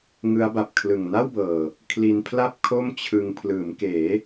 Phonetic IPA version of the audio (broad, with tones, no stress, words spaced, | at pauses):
ŋɯ˦˥a̯ba˨˩p̚kʰlɯ˨˩ŋ na˥˩wbɤː˨˩ | kʰli˧npʰla˥˩p̚ kʰo˥˩mt͡ɕʰɯ˧ŋ pʰlɯː˩˦mkeː˩˦